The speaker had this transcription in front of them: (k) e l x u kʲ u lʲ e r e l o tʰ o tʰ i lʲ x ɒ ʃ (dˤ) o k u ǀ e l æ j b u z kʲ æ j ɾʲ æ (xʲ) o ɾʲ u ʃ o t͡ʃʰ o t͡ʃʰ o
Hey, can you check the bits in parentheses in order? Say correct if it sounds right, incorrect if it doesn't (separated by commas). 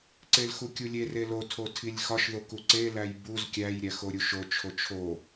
incorrect, incorrect, incorrect